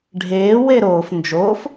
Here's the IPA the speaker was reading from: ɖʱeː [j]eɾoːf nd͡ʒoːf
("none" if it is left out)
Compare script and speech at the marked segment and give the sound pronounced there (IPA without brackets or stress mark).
w